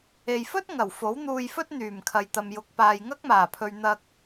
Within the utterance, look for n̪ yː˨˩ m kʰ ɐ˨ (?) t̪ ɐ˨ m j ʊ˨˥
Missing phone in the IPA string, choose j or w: j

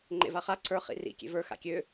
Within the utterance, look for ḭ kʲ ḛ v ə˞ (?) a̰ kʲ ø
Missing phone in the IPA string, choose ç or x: x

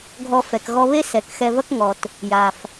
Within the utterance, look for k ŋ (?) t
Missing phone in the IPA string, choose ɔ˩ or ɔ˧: ɔ˩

